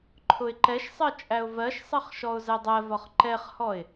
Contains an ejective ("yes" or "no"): yes